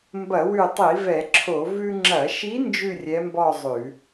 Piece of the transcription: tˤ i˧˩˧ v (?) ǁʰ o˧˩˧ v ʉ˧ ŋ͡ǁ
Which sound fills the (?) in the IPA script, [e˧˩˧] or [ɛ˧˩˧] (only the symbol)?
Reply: ɛ˧˩˧